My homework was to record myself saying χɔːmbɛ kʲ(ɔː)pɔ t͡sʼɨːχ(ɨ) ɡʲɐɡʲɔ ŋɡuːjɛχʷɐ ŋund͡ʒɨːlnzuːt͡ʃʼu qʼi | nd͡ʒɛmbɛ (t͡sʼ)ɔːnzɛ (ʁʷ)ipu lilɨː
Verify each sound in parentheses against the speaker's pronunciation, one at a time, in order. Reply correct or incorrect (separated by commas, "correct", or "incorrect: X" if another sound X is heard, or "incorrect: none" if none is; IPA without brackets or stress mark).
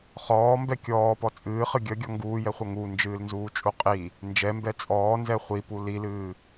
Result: correct, correct, correct, incorrect: χʷ